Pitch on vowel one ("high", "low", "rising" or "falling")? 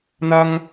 high